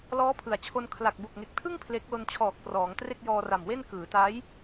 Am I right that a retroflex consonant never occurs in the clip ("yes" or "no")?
yes